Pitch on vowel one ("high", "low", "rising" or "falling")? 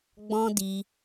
high